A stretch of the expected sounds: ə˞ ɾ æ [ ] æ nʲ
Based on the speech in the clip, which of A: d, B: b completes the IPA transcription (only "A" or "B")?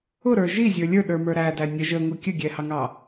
A